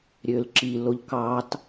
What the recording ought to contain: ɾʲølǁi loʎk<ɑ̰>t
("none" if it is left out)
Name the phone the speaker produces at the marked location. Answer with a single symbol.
ɑ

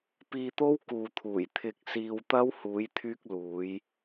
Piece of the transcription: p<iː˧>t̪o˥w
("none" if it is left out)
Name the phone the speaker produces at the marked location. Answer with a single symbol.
iː˧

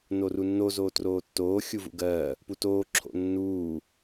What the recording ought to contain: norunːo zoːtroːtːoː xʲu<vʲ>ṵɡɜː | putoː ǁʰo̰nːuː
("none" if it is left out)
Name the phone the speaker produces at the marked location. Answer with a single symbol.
v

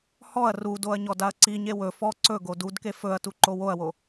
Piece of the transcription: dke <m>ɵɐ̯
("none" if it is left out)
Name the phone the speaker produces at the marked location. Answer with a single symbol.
f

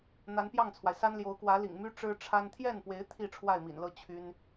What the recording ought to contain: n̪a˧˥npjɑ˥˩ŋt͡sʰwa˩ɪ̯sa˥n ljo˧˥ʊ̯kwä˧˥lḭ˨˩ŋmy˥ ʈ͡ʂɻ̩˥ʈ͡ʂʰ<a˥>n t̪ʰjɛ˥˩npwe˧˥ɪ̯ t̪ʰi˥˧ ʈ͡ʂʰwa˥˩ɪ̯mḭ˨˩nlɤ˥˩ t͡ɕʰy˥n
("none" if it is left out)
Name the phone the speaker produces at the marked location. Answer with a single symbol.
a˥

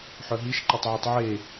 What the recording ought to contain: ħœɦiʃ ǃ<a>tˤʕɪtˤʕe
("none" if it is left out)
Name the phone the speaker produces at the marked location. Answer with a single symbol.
a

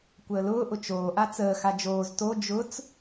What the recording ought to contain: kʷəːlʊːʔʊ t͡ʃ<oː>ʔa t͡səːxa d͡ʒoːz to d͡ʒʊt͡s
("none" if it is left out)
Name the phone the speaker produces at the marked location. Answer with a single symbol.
oː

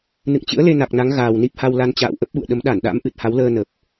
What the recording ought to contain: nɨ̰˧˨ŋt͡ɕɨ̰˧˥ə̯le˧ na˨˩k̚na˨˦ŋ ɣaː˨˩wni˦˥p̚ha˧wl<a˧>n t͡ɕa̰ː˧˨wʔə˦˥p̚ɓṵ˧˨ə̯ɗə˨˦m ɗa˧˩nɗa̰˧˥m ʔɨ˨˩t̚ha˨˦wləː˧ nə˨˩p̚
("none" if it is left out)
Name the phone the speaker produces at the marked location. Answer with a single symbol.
a˧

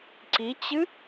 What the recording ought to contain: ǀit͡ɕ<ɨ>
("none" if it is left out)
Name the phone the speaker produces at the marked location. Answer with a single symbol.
ɨ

